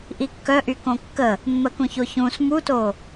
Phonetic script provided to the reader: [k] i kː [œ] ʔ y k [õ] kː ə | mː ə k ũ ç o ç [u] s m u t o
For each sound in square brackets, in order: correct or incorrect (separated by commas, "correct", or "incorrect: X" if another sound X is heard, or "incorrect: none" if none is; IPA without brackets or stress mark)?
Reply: incorrect: ʔ, correct, correct, incorrect: ũ